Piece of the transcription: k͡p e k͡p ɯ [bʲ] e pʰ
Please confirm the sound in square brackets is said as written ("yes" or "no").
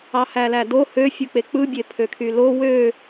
yes